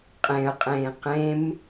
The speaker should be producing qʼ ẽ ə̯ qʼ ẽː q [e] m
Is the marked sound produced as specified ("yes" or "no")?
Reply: no